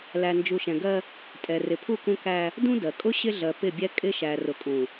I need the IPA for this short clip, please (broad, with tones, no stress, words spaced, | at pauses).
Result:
læ˨nd͡ʒu˨ʃɛ̃˨ɡɜ˦ | tʼɛ˨rɪ˨pʰu˦˨kũ˦ kæ˦ | dũ˦dɜ˨ kʼʊ˦ ɕɪ˦ɮɜ˨ pɪ˦˨bʲɛ˦ kʼɪ˦ ʃæ˨rʊ˨kʼũ˨